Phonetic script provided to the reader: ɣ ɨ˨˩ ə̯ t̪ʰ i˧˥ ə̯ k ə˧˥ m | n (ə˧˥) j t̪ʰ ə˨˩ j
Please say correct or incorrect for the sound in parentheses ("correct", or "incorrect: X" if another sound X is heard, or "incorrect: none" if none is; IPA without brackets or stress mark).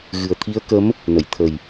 incorrect: ə˨˩˨